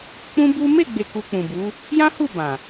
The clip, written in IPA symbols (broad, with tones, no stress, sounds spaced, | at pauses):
k͡p ũ˦ b u˦ m e˦˨ ɡ͡b e˨ k u˧ k͡p ũ˨ b u˨˦ | j ã˦ h u˦˨ b ã˨